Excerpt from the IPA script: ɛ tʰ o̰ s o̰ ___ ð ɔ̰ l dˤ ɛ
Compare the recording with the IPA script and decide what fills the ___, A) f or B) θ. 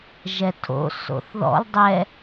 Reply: B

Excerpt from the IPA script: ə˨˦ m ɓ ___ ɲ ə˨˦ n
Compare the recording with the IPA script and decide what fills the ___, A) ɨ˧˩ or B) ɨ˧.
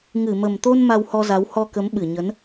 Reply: A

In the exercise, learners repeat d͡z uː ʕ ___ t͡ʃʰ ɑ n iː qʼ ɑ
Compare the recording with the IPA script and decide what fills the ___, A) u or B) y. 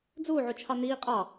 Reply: A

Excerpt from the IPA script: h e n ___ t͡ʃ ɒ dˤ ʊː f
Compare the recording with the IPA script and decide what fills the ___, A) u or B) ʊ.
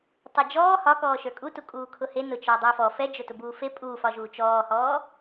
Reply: B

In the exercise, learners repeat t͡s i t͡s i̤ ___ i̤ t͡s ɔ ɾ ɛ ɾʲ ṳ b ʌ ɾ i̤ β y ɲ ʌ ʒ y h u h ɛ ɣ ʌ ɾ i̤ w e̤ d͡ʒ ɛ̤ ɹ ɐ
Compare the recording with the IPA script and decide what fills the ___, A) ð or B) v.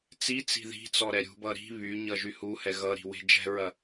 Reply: A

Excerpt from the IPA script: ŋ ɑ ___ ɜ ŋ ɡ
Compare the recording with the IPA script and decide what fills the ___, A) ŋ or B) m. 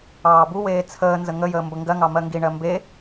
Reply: B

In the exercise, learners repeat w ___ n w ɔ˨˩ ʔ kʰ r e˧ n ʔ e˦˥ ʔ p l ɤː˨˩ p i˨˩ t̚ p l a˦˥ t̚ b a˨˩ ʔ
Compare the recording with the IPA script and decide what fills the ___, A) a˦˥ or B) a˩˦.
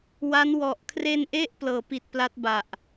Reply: A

